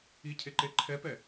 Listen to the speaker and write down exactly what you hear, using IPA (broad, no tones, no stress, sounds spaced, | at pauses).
i cʰ e ǃ e ǃʰ ɛ p ɛ